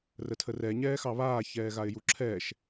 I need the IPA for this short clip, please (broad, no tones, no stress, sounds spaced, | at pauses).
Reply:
r ə tʰ ə r ɛ ɲ ɛː x ɑ β aː ç ɛː ɣ a ɪ̯ j u ǁʰ ɛ ʃ